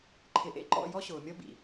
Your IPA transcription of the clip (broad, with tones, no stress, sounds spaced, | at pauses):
ǃʰ ɪ˨ ʔ ḛ˦ ǃ ɔ̰˦˨ j ɔ˦ ɕ ʊː˨ mʲ ɔ˦ b ḭ˨